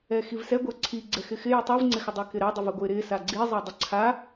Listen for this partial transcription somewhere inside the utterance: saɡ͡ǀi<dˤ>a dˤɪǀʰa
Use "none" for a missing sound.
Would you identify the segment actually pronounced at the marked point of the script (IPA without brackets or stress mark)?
zˤ